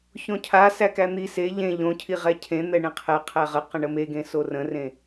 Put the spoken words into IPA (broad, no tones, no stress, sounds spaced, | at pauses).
ç õ cʰ a s æ k æ n̪ i s e ʎ ẽ ʎ õ cʰ i ʁ ɛ cʰ ẽ n̪ ɛ ɳ ẽ qʰ ɛ qʰ æ ʁ ə q ə̃ ɳ ə m e ɡ ẽ s o r ə̃ r ẽ